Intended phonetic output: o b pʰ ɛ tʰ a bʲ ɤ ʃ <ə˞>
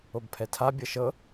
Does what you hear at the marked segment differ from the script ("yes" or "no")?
yes